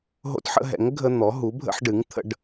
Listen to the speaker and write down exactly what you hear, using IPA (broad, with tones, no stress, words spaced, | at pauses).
ɦo̰˦tħə̰˦ɦɛ̰˩˥ŋ ɡʱə˦n̪ɔ˩˥ ɦu˩˥bʱə̰˦ħɖɨ˩˥ŋ t̪ʰə̰˦ɖ